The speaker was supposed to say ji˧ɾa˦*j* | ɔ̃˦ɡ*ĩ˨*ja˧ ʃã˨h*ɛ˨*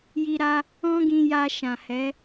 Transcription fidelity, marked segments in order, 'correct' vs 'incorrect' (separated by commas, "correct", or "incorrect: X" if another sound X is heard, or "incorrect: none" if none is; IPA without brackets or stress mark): incorrect: none, incorrect: ĩ˧, incorrect: ɛ˨˦